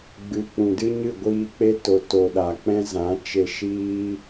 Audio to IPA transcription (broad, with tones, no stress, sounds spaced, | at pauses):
ɡ͡b ɨ˨ k͡p ũ˨ d ɨ˦ ɲ ɨ˦˨ ɡʷ iː˧ k͡p e˦ t o˨ t o˨ ɗ a˨ k͡p ɛ̃˦ z ã˨˦ t͡ʃ e˧ ʃ iː˦